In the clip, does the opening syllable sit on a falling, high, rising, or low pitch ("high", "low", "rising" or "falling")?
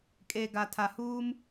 low